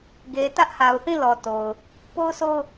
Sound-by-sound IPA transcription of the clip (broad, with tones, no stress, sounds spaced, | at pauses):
ɡ e˨ t ä˦ ʔ h a˨ ʊ̯ θ ĩ˦˨ l ɔ˨ t o˨ ʊ̯ | p o˦ ʊ̯ sʰ o˦ ʊ̯